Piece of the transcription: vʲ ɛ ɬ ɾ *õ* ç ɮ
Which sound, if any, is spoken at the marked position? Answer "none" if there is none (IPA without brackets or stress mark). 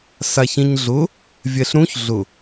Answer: ũ